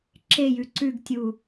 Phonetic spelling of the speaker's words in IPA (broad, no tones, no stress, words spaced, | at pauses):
ǁejʉ ǀʉɡtʲu